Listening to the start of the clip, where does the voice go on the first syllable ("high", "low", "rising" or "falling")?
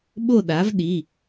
falling